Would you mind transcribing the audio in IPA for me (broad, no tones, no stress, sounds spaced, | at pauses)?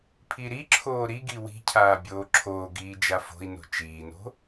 pʰ i ɾ i ǁʰ oː ɾ i ɡ i w i̤ cʰ aː bʲ oː ǁʰ oː ɡ iː d͡ʒ a f o̤ i̯ n o̤ t͡ʃ iː n o̤